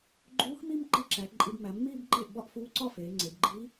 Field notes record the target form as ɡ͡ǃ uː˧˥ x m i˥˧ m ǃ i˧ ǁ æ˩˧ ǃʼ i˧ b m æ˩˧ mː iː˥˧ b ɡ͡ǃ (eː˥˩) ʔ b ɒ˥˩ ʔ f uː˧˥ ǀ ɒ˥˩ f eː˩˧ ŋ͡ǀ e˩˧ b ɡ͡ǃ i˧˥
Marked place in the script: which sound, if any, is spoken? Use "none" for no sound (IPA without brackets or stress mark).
eː˥˩